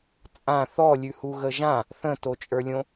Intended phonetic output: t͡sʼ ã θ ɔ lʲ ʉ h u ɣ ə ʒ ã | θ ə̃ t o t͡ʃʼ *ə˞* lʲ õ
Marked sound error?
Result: no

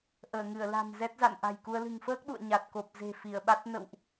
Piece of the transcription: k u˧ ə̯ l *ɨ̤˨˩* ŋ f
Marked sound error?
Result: no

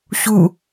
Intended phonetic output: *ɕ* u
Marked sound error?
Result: no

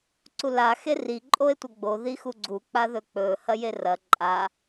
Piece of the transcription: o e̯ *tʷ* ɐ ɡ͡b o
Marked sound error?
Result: no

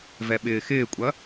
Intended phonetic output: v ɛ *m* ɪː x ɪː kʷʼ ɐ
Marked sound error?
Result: yes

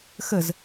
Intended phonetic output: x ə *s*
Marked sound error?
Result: yes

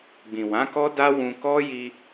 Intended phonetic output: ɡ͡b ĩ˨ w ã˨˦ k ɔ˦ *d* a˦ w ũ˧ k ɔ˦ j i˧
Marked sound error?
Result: no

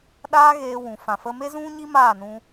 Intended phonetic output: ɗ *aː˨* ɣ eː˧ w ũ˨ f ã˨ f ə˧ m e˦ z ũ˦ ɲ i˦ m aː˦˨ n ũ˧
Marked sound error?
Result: yes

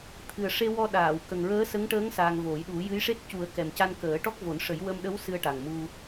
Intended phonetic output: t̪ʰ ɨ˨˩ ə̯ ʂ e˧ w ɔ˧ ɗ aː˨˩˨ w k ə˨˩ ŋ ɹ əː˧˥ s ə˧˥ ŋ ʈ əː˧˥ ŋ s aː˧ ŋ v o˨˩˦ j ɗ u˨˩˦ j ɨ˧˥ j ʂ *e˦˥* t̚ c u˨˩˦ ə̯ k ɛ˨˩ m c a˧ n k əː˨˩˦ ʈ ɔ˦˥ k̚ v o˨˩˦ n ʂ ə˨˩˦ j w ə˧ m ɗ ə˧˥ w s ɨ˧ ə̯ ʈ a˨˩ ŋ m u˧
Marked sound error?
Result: no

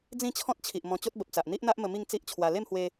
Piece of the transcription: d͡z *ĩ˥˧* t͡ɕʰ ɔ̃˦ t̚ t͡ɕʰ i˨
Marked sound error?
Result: no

